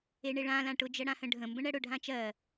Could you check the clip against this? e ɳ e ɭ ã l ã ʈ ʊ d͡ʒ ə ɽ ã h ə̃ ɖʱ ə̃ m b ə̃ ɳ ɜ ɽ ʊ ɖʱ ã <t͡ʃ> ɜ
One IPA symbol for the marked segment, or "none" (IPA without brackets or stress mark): t͡ʃ